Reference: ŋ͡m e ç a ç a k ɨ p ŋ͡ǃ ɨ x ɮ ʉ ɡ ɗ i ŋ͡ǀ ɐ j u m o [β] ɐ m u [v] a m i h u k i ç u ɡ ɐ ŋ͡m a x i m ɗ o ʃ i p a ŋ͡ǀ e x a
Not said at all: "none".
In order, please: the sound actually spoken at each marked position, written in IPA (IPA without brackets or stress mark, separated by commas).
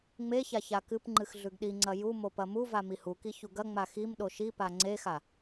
p, v